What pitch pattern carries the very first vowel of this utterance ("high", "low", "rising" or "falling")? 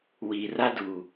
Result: low